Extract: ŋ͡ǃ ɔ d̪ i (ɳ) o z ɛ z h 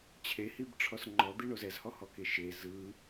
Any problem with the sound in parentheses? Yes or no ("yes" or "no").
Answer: no